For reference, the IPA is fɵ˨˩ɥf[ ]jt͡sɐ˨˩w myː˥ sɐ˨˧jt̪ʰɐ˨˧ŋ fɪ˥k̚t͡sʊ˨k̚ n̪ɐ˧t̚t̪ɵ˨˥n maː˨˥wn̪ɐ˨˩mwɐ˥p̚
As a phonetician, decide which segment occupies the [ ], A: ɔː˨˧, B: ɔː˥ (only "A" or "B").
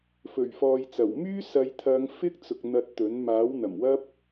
A